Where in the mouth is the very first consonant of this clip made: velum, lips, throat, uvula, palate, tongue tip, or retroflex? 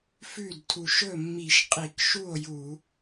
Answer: lips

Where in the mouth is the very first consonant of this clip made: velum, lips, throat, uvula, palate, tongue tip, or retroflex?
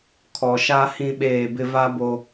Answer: velum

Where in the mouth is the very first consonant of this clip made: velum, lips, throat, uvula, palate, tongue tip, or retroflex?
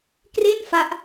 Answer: velum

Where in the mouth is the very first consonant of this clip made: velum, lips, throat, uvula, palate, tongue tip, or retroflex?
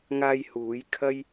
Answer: velum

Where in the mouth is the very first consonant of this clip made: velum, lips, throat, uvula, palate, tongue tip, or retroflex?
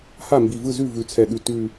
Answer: throat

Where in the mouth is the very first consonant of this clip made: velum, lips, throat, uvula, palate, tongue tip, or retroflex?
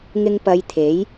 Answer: velum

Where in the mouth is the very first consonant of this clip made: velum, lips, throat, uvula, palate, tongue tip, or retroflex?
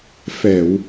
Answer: lips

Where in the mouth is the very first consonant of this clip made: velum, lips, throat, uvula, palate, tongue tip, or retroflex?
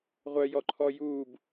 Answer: uvula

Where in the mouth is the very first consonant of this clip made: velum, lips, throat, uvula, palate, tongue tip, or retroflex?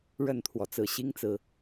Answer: retroflex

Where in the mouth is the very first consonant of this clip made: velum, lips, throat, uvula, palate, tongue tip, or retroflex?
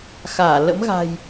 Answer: velum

